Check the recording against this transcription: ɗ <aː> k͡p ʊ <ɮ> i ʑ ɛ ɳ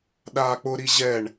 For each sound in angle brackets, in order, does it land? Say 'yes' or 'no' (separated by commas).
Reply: yes, no